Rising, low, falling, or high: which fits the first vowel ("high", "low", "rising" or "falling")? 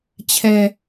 low